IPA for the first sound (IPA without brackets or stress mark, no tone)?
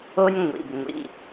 o